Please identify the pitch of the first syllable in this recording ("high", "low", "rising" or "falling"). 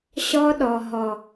high